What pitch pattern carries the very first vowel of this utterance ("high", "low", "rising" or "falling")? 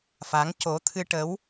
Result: rising